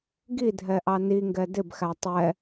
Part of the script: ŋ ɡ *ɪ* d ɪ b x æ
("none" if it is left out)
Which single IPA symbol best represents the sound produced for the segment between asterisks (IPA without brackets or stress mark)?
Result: ɛ